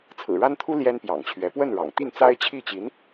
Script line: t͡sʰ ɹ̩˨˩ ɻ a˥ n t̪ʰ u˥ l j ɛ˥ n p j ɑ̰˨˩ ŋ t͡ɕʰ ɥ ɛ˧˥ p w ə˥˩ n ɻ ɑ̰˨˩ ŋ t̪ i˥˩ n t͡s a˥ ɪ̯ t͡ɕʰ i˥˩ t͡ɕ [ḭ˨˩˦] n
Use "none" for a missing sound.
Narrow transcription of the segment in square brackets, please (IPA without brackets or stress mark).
i˧˥